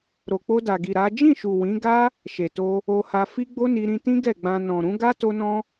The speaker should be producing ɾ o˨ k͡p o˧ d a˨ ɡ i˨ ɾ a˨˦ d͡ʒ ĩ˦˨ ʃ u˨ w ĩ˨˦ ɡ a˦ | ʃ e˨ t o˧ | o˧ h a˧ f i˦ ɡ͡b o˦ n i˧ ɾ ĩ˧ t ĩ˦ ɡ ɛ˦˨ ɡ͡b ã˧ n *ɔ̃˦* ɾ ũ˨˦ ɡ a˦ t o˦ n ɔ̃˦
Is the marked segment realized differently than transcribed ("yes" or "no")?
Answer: yes